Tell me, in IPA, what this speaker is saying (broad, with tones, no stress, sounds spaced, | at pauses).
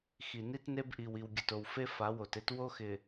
x i˨ n i˦ t n e˦ b ʔ i˨ w i˨ w ɡʲ ʊ˨ t o˨ w f e˦ f a˨˦ w o˨ t e˦ t w o˦ x ɪ˨